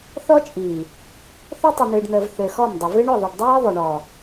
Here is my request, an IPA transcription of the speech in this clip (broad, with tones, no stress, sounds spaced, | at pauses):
θ ɔ˦ t͡ʃʼ iː˨ | θ o˦ tˤ ɨ˨ n̪ ɨː˨ ɖ n̪ əː˨ v θ ø˨ x ɔ˦˨ m dˤ ʊ˨ v ɨ˦ ɳ ʊ˦˨ ðˤ ɨ˨ ɖ dˤ iː˦ ðˤ ʊ˨ ɳ ɔ˨